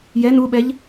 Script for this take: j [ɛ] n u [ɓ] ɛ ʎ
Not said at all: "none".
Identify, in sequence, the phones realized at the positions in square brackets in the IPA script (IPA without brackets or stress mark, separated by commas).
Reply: ɛ, ɓ